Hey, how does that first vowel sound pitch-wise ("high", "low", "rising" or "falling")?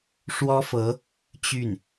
high